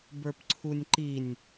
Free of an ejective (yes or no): yes